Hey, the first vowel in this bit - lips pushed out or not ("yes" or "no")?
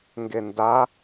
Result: no